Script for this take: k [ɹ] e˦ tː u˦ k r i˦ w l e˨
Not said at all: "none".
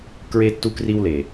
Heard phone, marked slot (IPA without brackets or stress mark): ɹ